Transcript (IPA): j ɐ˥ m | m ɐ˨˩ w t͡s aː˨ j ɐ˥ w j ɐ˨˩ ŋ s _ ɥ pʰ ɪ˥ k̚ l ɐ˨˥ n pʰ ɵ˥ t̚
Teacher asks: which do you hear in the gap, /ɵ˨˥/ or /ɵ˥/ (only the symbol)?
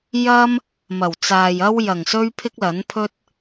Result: ɵ˥